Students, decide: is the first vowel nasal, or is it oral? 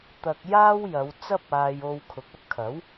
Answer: oral